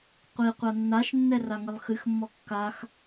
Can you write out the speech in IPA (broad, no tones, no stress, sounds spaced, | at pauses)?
qʷ i qʷ a nː a ʃ nː ɛ r a ŋ ɘ lˠ x ɨ x mː ɔ kː a x